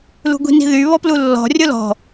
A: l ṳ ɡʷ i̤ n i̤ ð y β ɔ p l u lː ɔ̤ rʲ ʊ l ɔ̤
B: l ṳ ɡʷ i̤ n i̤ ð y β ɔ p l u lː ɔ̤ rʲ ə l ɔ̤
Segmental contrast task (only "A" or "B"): A